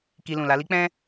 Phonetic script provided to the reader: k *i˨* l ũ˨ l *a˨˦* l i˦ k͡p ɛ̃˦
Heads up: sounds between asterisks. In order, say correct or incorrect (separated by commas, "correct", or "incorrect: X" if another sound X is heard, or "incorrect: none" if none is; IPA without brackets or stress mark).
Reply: incorrect: i˧, correct